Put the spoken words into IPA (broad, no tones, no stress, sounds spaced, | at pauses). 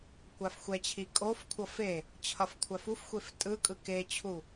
kʷ a f xʷ ɛ t͡ɕʰ i kʼ o f kʷʰ ʌ f e | t͡ɕʰ ʌ f kʷʰ a f u f xʷ e f tʼ ɯ kʼ ɯ k e t͡ɕʰ u